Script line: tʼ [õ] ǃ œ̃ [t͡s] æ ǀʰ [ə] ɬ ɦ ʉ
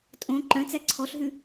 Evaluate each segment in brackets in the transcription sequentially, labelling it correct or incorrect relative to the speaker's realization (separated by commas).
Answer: correct, correct, incorrect